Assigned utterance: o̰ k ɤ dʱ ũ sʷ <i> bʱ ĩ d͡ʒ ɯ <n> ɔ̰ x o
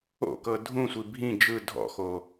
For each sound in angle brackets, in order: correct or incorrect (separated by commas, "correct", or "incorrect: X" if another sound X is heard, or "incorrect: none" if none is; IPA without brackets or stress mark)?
correct, incorrect: dʱ